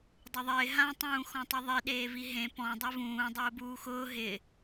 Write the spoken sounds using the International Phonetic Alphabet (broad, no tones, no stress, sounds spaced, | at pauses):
dˤ ʊ ðˤ ɪː ɦ ã tˤ ũː x ɔ̃ tˤ ʊ ðˤ i ɗ eː v i ɦ ẽ p ɔ̃ dˤ e v ũː dˤ ʊː b uː x ʊː ɦ ɪ